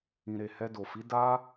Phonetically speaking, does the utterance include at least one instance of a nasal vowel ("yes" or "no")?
yes